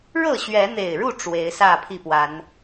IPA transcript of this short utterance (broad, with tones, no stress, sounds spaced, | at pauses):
ɻ ɤ˥˨ ɕ ɥ ɛ˨˦ n̪ e˨˩ ɪ̯ ɻ u˥˨ ʈ͡ʂ w e˨˦ ɪ̯ s ä˥˨ pʰ i˥˨ p w a˨˦ n